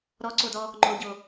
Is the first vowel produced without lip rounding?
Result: no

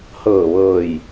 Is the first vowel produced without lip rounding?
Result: yes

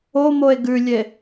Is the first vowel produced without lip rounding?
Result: no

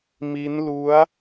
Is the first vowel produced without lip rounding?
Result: yes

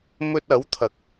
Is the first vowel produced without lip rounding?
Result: no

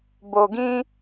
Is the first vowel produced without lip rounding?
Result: no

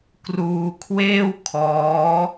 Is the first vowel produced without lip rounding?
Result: no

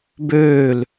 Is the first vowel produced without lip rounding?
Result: no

